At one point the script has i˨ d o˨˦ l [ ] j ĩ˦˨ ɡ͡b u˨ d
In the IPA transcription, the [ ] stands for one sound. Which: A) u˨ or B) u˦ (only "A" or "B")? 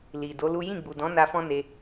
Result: B